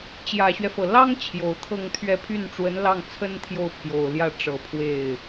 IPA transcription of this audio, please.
t͡ɕjä˨˩ɕɥɛ˦fɤ˩ lɑ˥ŋ t͡ɕʰjo˨˩ʊ̯t̪ʰɤ˥˧ŋt̪ʰɥɛ˥˧ pʰy˥˩nʈ͡ʂwə˧˥nlɑ˥˩ŋt͡sʰə˥n t̪ʰjo˥˩ʊ̯pʰjo˨˩ʊ̯ljä˥˩ ʈ͡ʂɤ˨˩pʰwe˥˩ɪ̯

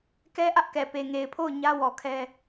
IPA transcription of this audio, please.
kɛ˦ʔä˦ʔkɛ˨ pe˨ŋe˨ɪ̯pʰo˦˨ʊ̯ ɲä˦wɔ˨kʰɛ˦

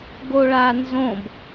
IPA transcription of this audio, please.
ɡoɭanzõb

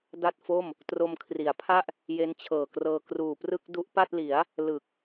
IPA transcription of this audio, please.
da˥˩t̚fo˥˩m | tro˧mkʰri˩˦a̯pʰa˥˩ʔ | je˦˥nt͡ɕʰɤː˨˩krɤː˧ kruː˨˩prɯ˥˩k̚ du˦˥ʔpa˥˩t̚li˩˦a̯ | lɯ˨˩k̚

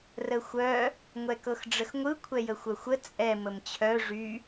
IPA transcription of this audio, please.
rəxʷœ | ŋʷɛkɤxɖ͡ʐəxŋʷɯ kʷʰɛjəxʷœxʷə t͡sʼɛ məmt͡ɕʰœ ʐy

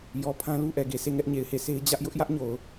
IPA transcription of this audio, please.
jɔ˨ pʰã˦lu˦ʔɛ˨ɡe˨ sʰe˦˨ŋɛ˦ʔɲe˨ɪ̯he˦˨ sʰe˦ɪ̯ d͡ʑä˦ʔ jʊ˦ʔjä˦ʔɲo˨ʊ̯

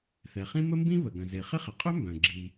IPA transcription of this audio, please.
θɛ˩χĩ˥ mə˥mbĩ˥ βə˩ ɡœ̃˩ze˩χɪ˥ χɪ˩qʼœ˥mbœ̃˩ ɡ͡ǁi˩

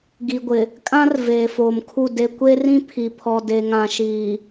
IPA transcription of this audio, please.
ɡi˨ɡʷɪ˨ | kʼã˦r veː˨foː˨mkʰu˦˨ de˨kʷe˦rĩ˦ pʰi˨pʰɔ˨de˨ŋã˨ ʃiː˨

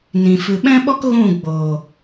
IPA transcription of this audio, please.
nĩ˨ fɨ˨ɓɛ̃˦ɓɔ˦k ɣũ˦˨ ɡ͡boː˨

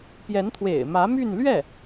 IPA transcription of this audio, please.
pjɛ˧˥nt̪ʰwḛ˨˩ɪ̯mä˧˥ my˥˧nlɥɛ˥˩

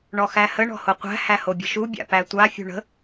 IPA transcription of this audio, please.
ɳɔxæhə ɳɔ̤hoqʷæ̤ hæhobʲə̤ʃu bʲa̰pætʷa fʲṳɳə̤

